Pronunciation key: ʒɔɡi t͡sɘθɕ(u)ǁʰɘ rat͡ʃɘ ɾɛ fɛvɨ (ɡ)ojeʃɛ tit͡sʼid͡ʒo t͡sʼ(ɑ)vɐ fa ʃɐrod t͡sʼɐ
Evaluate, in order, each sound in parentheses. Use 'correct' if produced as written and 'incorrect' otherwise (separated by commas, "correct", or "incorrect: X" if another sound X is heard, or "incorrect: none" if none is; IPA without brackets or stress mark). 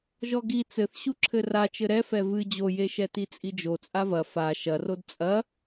correct, incorrect: d͡ʑ, incorrect: a